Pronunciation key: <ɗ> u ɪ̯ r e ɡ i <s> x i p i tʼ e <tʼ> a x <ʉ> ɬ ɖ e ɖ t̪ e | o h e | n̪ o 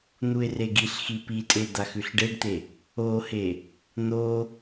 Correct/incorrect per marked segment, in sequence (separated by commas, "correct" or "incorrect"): incorrect, incorrect, incorrect, correct